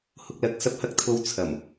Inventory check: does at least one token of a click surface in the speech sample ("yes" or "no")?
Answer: no